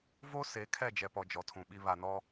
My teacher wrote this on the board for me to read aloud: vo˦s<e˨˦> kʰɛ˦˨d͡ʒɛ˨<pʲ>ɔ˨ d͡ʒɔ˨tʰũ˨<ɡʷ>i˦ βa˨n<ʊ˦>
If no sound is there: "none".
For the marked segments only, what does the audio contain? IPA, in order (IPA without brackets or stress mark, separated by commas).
e˨˦, p, ɓ, ɔ˦